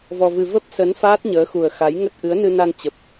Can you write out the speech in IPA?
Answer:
v ɔ˧ v ɨ˧ v ə˦˥ p̚ s ə˨˦ n f aː˦˥ t̚ ɲ əː˨˦ x u˨˩ ə̯ x a˨˦ j ŋ ə˦˥ t̚ ʔ ɨ˨˦ ə̯ n ɨ˧ n a˧ n t͡ɕ ə˨˩ p̚

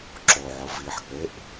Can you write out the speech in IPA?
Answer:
ǁ o ʕ ʊ v i ħ k͡p e ʔ

